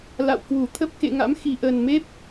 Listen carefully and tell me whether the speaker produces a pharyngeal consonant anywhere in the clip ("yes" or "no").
no